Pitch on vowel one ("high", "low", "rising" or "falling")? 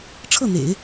falling